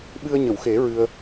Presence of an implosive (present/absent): present